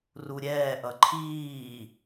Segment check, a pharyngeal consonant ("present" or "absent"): absent